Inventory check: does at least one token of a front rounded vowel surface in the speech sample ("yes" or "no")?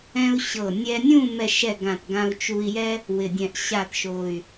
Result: yes